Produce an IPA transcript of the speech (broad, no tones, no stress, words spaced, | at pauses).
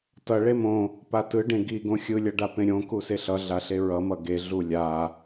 tʌ ɭemõ | patɯɖẽ ɡiɡõ xʲɯlʲʌɖapẽ ɾʲõ kuseɬʌ ɮaɬeɹʌmʌ ɡe ɮulʲa